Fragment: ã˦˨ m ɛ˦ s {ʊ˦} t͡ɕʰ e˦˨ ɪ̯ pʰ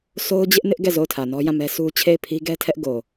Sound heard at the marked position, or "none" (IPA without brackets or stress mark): u˦